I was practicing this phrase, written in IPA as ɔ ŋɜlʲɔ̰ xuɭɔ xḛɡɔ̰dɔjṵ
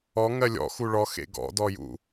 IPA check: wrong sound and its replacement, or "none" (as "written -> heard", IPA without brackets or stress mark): none